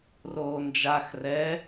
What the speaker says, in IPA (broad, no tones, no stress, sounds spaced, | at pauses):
r oː n d͡ʒ a x r ɛ